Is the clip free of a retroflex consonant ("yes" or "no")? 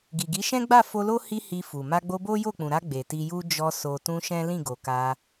yes